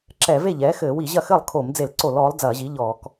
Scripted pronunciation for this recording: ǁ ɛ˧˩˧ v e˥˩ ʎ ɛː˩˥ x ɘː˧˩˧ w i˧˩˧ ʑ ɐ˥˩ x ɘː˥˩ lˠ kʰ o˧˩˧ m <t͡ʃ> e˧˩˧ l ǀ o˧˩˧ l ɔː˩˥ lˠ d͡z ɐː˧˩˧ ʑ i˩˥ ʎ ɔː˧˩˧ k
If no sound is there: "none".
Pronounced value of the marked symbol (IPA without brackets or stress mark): d͡z